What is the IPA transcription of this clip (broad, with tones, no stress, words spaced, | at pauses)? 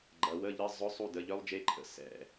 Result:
ɡ͡ǃɐ˩˧wə˧˥˧ʎə˧˥˧ zˤʊ˧˥˧sˤu˦˨də˩˧˩ ʎœ˦˥lˠd͡ʒe˦˥ǃʰə̰˩˧˩ sɛ̰˩˧˩